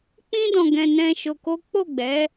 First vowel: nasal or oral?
nasal